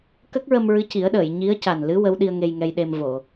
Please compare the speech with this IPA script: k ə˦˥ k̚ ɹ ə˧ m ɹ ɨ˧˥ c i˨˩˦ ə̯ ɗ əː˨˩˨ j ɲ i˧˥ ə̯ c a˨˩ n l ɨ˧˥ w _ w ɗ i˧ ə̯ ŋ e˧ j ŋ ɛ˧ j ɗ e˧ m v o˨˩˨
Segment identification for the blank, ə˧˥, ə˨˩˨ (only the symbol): ə˧˥